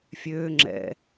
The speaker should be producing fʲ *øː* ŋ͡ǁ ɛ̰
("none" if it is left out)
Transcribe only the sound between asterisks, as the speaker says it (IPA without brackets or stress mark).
øː